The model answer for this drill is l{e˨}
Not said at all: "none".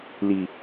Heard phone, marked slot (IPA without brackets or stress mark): i˨